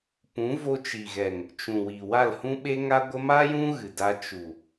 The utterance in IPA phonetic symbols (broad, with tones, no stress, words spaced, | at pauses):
pũ˨˦vo˧t͡ʃi˨ɣɛ˨ŋ | t͡ʃũ˨wi˨wa˦˨l hũ˦ɓe˦ŋa˦ɡʷə˦ ma˦jũ˦ ɣɨ˨da˧ t͡ʃu˨